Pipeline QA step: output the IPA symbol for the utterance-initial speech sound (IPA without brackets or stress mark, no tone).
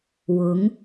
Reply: w